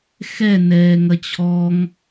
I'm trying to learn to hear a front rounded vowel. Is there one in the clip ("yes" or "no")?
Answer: no